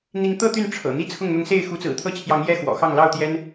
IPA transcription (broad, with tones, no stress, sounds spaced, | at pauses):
n̪ i˨˦ ŋ t̪ ɤ˥˨ t̪ y˥˨ n ʈ͡ʂʰ ɤ̰˨˩ n̪ i˦ t͡sʰ ʊ˥˨ ŋ n̪ ʊ˨˦ ŋ s e˥˨ ɪ̯ x u˨˦ t͡s ɹ̩˨˩ t̪ʰ ɤ˦ t͡ɕʰ j ɑ˨˦ ŋ j ɛ˥˨ x w ɔ̰˨˩ x ɑ˥˨ ŋ l ɑ˥˨ ʊ̯ t̪ j ɛ˦ n